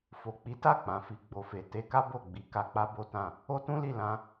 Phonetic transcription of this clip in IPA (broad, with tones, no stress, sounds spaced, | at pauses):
f o˨ k͡p i˨˦ t a˦˨ k͡p ã˨˦ f i˧ ɡ͡b o˨ f e˨ t e˧ k a˦ b o˦˨ ɡ͡b i˨˦ k a˧ k͡p a˦ b o˦ t ã˦˨ | o˦ t ũ˦ l i˦˨ l ã˧